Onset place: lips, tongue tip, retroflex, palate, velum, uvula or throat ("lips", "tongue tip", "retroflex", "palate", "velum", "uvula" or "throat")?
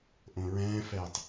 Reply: throat